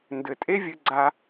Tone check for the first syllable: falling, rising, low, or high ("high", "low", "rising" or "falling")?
low